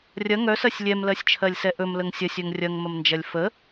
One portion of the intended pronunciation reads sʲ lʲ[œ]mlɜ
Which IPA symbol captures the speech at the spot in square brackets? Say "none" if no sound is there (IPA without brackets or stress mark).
ɛ